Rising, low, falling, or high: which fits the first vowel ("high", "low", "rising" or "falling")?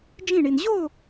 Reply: falling